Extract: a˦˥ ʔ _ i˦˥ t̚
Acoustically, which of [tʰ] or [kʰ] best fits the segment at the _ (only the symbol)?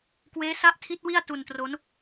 tʰ